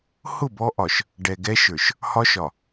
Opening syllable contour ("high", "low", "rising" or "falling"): falling